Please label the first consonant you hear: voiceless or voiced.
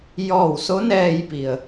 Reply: voiced